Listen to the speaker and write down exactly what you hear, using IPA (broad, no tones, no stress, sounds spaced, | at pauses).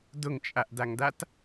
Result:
d ʊ ŋ t͡ʃʼ a ʔ d a ŋ d a t